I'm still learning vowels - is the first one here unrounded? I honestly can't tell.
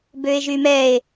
no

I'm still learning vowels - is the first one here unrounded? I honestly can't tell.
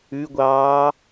no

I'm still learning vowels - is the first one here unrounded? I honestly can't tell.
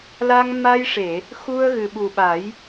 yes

